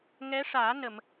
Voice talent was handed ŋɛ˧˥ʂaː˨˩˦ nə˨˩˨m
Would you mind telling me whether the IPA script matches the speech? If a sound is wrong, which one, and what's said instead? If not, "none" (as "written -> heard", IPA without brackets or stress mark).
none